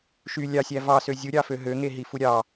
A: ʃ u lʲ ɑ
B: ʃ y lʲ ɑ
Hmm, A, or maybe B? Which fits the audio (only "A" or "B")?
B